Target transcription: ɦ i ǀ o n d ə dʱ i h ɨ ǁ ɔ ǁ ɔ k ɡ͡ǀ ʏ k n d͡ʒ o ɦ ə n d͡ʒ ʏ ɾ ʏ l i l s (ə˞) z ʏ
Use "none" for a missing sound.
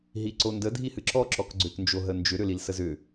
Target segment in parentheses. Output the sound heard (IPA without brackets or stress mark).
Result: ə